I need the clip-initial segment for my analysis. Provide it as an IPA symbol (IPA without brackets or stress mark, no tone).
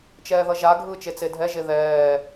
t͡ʃ